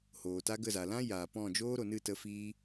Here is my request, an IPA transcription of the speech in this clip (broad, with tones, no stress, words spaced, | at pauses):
hoː˨ta˦ɡə˦˨za˨ lã˦ jaː˨pɔ̃˦˨ d͡ʒoː˦ɾo˨nɨ˦˨ tə˧fiː˦